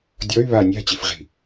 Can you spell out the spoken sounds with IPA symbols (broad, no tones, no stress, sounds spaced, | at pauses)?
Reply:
dʲ ɔ y̯ β a nʲ a̤ t͡ɕ i f ʁ i̤